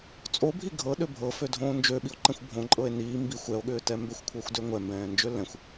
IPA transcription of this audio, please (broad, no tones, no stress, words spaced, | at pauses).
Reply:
t͡sʼobʱi ɡʱɤɗø bʱɤfødʱõː nd͡ʒøɓio̯ǃɛ̃xʷ bʱõǃʼɤe̯ niː mbixʷ ɛo̯ɠʏːtɛ mbʏxʷkʷʰɤxʷdø ŋʷɛmbɛ̃ːnd͡ʒø lɛ̃xʷ